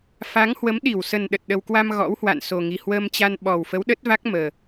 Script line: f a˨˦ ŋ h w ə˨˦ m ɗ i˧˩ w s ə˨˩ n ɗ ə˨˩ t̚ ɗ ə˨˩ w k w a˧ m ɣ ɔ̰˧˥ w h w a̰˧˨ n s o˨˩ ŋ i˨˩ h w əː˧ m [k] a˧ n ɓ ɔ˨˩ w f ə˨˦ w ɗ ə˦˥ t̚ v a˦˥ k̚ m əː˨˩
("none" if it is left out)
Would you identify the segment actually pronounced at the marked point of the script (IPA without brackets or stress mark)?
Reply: t͡ɕ